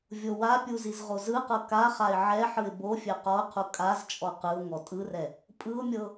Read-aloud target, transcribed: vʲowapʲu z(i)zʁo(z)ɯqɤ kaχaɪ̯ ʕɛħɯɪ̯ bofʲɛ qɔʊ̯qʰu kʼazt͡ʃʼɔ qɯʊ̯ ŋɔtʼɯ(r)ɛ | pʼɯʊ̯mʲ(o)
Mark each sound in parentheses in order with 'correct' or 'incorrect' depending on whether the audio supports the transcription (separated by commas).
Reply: correct, correct, correct, incorrect